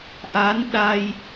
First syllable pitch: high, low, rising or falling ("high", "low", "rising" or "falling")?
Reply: rising